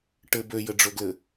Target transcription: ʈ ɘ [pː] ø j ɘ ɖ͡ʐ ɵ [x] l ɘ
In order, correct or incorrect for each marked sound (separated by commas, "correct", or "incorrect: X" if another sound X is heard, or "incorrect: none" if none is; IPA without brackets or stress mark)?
incorrect: b, incorrect: ɡ